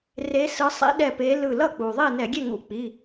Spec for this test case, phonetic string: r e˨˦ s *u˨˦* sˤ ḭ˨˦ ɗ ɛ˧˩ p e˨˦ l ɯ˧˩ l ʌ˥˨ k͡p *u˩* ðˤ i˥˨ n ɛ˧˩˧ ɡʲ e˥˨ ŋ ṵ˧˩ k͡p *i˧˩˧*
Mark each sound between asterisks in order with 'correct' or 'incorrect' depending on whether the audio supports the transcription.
incorrect: ɯ˨˦, correct, incorrect: i˩˧˩

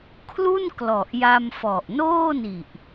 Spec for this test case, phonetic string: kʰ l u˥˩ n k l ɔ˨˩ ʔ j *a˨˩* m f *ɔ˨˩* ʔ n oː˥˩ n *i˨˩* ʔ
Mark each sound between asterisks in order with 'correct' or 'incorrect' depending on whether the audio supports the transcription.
incorrect: a˧, correct, correct

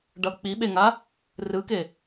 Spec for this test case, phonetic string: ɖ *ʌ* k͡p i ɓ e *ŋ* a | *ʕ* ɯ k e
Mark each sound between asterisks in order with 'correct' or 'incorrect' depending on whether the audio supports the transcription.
correct, correct, incorrect: r

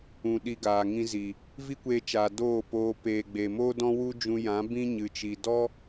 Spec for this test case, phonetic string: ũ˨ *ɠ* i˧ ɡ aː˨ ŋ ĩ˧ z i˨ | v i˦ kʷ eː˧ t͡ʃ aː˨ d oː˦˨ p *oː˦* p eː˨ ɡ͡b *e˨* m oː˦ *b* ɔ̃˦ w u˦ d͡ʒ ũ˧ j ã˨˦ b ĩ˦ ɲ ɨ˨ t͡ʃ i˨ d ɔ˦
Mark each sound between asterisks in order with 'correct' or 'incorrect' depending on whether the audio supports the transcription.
incorrect: ɗ, incorrect: oː˧, correct, incorrect: d

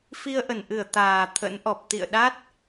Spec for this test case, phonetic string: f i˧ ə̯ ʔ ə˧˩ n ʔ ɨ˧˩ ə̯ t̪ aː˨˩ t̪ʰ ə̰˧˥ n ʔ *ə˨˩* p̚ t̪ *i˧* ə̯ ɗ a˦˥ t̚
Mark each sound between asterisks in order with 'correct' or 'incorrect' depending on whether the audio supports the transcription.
incorrect: ɔ˨˩, incorrect: ḭ˧˨

